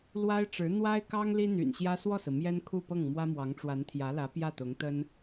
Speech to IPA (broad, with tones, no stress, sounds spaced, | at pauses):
l w a˥ ɪ̯ ʈ͡ʂ ɻ̩˧˥ n̪ w a˥ ɪ̯ k ɑ˥ ŋ l i˥ n̪ y̰˨˩ n ɕ j ä˥ s w ɔ˥˩ s ɹ̩˩ m j ɛ˥ n kʰ u˥˧ p ɤ˥˩ ŋ m w ä˥ m w ɑ˧˥ ŋ ʈ͡ʂ w a˧˥ n t̪ʰ j ä˧˥ l ä˧˥ p j ä˥˩ t̪ ʊ˧˥ ŋ t̪ ə˥ n